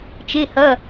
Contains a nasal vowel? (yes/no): no